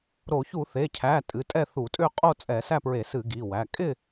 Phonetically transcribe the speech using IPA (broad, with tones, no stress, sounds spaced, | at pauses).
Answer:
ɾ o˧˩˧ ç u˧˩˧ θ e˩˧˩ cʰ æ˩˧˩ tʼ ɨ˩˧˩ tʼ ɛ˥˨ θ u˧˩˧ tʼ ʏ˥˨ qʼ o˥˨ t͡sʼ ɛ˧˩˧ s æ˥˨ p ɹ e˧˩˧ s ɨ˧˩˧ ɡ i˩˧˩ w æ˩˧˩ kʼ ɪ˥˨